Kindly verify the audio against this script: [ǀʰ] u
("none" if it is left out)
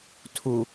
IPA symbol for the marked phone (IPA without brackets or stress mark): tʰ